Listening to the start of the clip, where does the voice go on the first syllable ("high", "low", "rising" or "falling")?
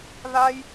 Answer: high